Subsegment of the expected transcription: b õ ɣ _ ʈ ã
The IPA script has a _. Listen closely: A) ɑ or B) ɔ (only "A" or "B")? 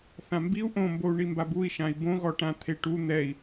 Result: B